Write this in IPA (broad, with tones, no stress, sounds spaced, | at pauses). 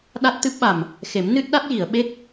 ɗ a˦˥ t̚ t̪ ɨ˦˥ p̚ ɓ a˨˩ m | x e˨˩˦ m n ɨ˦˥ t̚ ɗ a˦˥ t̚ j i˨˩˨ ə̯ ɓ e˦˥ k̚